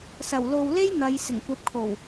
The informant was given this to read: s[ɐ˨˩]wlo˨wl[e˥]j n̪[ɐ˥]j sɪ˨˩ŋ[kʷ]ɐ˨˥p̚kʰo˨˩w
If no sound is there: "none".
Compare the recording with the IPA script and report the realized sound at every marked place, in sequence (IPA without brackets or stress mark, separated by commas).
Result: ɐ˨˩, e˥, ɐ˨˧, kʷ